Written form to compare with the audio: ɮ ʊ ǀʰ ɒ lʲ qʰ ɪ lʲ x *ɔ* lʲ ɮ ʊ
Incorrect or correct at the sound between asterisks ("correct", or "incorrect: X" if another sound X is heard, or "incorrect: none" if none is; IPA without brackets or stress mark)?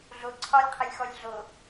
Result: correct